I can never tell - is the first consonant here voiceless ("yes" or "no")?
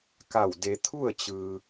yes